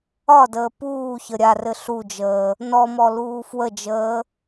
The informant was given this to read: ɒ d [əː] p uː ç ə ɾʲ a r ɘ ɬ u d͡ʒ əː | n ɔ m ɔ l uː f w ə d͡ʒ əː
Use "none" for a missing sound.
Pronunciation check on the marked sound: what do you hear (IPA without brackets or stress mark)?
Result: əː